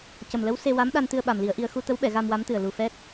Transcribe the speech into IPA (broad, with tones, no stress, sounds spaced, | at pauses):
c ə˨˩ m l ə˧˥ w s e˧ w a˧˥ m ɗ a˧ n t̪ ɨ˧ ə̯ ɓ a˨˩ m l i˨˩˦ ə̯ ʔ i˧ ə̯ x u˧ t̪ ə˧˥ w ɓ ɛ˨˩˨ ɣ a˧ m w a˧˥ m t̪ ɨ˨˩ ə̯ l u˨˩ f ɛ˦˥ t̚